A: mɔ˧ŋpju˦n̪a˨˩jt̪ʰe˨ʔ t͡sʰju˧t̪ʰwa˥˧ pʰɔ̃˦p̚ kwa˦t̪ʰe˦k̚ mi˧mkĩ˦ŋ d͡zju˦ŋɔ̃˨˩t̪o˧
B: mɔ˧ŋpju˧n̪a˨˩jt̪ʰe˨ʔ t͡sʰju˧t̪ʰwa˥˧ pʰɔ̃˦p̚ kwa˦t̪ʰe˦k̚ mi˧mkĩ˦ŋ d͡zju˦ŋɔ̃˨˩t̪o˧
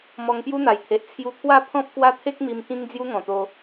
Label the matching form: A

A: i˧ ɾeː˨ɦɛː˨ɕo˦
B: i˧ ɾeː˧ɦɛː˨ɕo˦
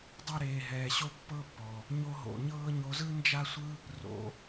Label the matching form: A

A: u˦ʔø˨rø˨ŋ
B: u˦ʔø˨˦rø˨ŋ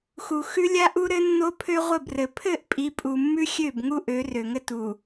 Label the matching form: B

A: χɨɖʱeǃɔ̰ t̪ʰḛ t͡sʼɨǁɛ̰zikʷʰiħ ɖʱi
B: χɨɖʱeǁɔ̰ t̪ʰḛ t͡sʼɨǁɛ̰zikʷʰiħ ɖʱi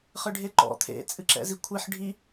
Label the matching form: A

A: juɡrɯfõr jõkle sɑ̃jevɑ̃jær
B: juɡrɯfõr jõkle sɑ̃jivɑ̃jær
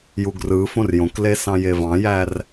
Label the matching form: A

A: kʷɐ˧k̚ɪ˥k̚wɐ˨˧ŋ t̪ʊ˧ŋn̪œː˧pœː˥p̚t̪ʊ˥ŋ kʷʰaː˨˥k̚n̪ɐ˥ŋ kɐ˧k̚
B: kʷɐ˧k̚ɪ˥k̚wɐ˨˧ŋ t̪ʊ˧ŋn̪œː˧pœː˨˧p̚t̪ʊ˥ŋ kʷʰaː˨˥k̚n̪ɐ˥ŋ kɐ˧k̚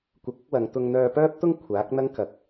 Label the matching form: A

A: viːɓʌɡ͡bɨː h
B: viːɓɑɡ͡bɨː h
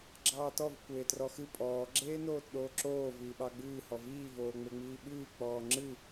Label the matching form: B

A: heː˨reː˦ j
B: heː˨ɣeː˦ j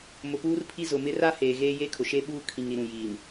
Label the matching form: B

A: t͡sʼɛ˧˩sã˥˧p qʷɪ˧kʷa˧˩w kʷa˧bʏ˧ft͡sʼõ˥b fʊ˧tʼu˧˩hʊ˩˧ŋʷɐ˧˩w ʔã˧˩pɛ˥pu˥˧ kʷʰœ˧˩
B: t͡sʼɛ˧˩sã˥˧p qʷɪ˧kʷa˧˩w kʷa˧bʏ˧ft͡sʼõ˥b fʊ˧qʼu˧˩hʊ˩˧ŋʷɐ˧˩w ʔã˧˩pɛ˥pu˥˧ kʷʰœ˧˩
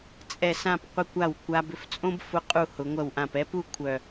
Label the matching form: B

